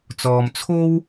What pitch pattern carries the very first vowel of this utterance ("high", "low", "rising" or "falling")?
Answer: low